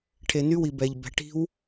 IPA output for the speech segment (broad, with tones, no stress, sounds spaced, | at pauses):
ʈʰ e˨ n y˦ w i˨ b ɛ˨ ʎ b ɛ̤˨ ʈ i̤˦ w